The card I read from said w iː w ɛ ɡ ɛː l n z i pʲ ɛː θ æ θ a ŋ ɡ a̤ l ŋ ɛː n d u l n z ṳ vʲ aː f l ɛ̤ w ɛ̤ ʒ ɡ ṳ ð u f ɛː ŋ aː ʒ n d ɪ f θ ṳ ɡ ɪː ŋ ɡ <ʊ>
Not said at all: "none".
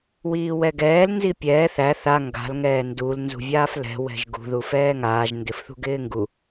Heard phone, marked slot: u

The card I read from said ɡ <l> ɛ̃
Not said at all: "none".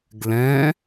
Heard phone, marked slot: l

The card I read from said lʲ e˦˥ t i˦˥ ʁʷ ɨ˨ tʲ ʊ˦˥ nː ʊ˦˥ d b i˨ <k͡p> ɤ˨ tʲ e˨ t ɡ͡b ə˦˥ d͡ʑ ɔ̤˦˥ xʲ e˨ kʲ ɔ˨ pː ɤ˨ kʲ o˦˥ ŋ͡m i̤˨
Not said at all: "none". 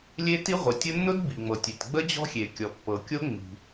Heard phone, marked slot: ŋ͡m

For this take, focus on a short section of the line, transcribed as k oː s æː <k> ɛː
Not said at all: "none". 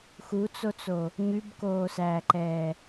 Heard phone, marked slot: ǃ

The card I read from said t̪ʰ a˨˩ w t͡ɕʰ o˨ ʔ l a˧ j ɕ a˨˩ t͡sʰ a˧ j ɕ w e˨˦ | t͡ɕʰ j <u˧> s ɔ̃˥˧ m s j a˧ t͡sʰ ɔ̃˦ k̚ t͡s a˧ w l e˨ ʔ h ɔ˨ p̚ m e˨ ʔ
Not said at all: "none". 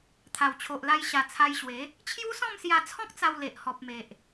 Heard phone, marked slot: u˦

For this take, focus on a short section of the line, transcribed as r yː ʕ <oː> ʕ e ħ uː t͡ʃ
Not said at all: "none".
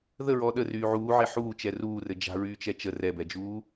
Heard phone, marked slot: uː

